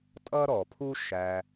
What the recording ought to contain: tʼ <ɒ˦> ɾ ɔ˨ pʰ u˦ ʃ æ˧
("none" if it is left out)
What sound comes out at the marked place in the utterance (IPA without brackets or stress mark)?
ʌ˦